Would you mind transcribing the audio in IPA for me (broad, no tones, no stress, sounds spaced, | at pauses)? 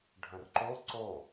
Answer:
ɖʱ ə̃ r ǃ o ǀ o